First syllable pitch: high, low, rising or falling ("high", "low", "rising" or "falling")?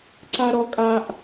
high